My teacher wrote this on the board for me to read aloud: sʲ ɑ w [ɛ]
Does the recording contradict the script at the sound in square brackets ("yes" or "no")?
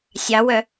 yes